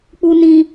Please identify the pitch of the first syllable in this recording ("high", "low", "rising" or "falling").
low